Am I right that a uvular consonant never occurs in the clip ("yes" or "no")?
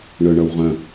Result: no